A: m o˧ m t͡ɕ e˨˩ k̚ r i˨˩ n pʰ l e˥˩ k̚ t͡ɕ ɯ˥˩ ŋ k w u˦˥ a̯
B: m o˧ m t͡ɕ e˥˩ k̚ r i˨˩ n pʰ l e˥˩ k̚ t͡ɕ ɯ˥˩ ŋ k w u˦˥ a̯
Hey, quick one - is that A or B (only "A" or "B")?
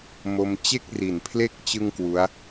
B